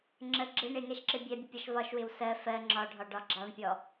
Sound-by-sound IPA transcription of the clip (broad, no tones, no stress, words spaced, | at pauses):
ŋ͡ǁə ɡ͡ǁɪ ɳɪŋɛʃǁɪ bʲɛbʲəpʲɒʃ vɒʃwɪw sɜ fɜ ŋ͡ǁɒɖʱɒɖɒ ɡ͡ǁɑɳpʲɔ